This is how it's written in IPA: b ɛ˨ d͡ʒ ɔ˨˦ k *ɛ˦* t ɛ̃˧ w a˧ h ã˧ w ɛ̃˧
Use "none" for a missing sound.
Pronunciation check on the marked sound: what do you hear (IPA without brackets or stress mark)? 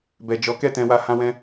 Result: ɛ˦˨